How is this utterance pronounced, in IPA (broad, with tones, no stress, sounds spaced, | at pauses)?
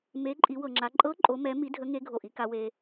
m e˧˥ ǃʼ i˧˥ w ɤ˧ ŋ͡ǁ a˧˥ ǃʼ ɤ˧˥ ǃʼ o˧˥ m ɛ˧˥ m i˧˥ dʱ ə˧˥ ŋ e˧˥ ɡʱ o˧˩ ʔ i˧ k a˧ w e˧